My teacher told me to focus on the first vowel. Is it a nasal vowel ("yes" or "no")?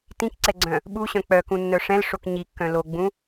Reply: yes